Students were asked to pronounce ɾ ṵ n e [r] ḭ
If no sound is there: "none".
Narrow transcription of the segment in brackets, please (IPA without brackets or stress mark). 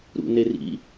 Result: r